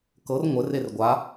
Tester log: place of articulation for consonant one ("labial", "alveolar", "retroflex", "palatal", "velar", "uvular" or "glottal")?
velar